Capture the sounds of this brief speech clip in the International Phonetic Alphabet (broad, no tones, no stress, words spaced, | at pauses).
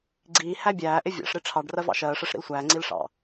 ɡ͡ǀiː hæbʲæːʔɪ vʲɑ̰ʂɾɪ ʈ͡ʂʰɑɖ rɜvɑ̰ʃɜːʂɜʂ ɾḭlsʷæːŋ͡ǀiːl ʂɑ̰